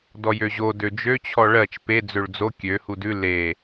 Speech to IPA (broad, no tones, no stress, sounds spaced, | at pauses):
d ɔ j ø ʑ o d ø d͡ʒ ø t͡ɕʰ ɔ ɭ ɜ t͡ʃ p e d͡z ø ɭ d͡z o kʲ ø h u d ʉ l e